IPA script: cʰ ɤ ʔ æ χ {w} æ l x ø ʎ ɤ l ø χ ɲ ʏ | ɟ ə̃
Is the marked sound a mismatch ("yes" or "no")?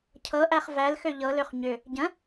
yes